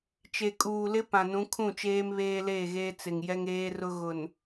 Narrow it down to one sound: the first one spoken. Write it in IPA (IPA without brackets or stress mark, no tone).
t͡ʃ